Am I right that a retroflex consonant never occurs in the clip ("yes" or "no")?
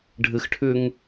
no